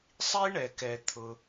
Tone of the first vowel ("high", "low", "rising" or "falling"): high